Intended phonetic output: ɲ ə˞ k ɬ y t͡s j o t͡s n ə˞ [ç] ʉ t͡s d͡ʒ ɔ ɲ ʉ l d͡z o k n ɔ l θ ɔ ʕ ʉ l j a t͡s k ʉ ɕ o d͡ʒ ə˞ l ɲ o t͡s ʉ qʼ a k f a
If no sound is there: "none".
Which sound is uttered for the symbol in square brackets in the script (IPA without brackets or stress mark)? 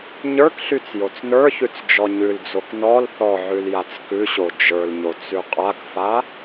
ç